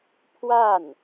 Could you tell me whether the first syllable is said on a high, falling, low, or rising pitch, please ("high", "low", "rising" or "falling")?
falling